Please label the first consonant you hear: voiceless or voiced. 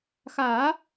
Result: voiceless